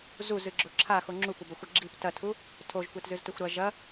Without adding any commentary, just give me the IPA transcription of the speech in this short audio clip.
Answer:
z u z ɨ ɡ͡ǁ o ǁʰ a x o ŋ͡ǁ u kʷ ɐ b ɐ xʷ ɐ ɡ͡ǁ i p t ɐ tʰ u | tʰ o ʒ kʷ e t z ɨ z t ɵ xʷ ɾ ɐ ʒ ɐ

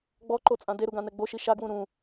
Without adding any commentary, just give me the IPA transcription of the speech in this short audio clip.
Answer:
ɡ͡b ɔ ǃ o t͡sʼ ã d e ɾ u ɡ ã n ɛ ɡ͡b o ʃ i ʃ a ɡ w ũ ɾ ũ

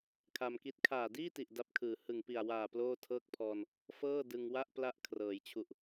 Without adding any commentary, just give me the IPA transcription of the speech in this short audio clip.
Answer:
kʰ a˧ m k i˦˥ t̚ kʰ aː˨˩ d iː˥˩ t i˨˩ ʔ d a˦˥ p̚ kʰ ɯː˨˩ h ɯ˨˩ ŋ p i˨˩ a̯ w aː˨˩ p l oː˥˩ tʰ ɤː˥˩ k̚ pʰ ɔː˧ n | f ɤː˥˩ d ɯ˧ ŋ w a˥˩ ʔ p l a˦˥ ʔ kʰ r ɤː˩˦ j t͡ɕʰ u˨˩ ʔ

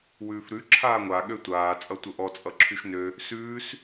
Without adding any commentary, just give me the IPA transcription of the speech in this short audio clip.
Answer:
w ʉː f ɾ ʉ ǁʰ aː ŋʷ a ɠ ø tʷ aː t͡sʼ ʌ tʷ ə ʔ ɔ t͡sʼ ʌ ǁʰ y ʃ n ø | s ʉː s

